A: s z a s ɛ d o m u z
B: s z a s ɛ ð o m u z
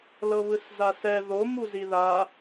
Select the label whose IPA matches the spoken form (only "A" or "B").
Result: B